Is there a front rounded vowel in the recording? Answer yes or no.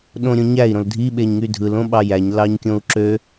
yes